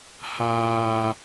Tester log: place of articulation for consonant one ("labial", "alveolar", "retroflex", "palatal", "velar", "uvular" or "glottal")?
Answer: glottal